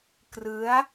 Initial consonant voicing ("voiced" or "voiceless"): voiceless